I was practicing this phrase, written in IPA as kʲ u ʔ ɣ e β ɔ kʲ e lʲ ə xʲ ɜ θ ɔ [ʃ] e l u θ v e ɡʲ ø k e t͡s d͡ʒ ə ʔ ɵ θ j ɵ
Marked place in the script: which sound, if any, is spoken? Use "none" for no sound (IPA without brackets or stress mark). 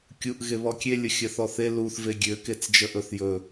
θ